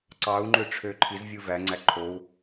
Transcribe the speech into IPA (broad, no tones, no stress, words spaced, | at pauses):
ǀɑu̯ŋ͡ǃøʈ͡ʂʰø ǃʰizvʲɯ væŋ͡ǀæ ǃʰou̯